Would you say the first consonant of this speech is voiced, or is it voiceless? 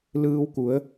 voiced